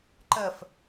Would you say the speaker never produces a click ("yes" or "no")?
no